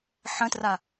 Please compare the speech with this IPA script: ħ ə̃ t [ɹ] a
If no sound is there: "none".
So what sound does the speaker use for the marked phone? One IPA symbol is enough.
r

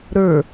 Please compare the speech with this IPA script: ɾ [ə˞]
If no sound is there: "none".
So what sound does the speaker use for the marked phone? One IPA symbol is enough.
ə˞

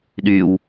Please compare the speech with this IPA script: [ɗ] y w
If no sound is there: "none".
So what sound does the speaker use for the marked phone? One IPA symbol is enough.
ɗ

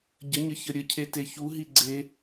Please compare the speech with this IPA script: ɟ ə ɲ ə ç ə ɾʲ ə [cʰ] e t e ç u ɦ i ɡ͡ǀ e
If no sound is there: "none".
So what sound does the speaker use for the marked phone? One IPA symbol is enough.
cʰ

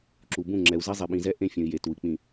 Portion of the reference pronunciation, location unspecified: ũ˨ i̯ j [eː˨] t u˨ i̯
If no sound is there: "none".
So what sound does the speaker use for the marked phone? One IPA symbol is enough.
e˨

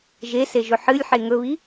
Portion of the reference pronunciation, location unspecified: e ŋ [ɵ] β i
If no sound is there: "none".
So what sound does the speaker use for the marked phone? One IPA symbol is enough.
ɵ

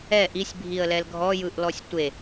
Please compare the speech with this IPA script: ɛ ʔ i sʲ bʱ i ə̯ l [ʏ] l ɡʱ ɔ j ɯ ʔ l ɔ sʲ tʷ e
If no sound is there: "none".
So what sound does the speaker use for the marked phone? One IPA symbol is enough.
ɛ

